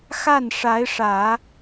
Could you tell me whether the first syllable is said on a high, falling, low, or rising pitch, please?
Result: falling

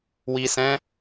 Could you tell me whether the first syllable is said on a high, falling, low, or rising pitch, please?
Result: low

